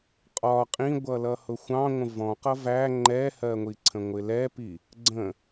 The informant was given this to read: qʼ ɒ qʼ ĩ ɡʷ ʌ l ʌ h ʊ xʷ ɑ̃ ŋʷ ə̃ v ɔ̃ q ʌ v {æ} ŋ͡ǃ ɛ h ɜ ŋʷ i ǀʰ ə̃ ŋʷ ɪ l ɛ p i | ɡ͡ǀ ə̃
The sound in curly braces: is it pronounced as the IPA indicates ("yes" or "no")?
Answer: yes